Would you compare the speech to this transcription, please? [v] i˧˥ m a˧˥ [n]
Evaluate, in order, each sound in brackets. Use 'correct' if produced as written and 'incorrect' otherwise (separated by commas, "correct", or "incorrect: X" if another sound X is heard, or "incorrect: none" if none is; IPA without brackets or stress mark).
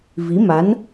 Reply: correct, correct